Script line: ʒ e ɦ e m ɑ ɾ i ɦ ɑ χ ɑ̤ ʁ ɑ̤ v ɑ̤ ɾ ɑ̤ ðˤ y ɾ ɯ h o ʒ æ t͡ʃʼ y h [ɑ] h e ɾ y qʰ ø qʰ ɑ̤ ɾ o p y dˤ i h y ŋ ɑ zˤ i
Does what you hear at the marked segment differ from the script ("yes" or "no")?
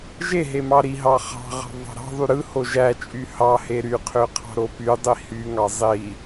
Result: no